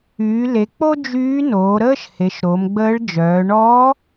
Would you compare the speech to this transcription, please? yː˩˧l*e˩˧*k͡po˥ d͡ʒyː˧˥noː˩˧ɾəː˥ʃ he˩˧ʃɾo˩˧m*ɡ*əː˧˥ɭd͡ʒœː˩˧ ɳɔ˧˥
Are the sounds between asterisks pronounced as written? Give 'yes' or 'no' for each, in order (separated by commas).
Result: yes, no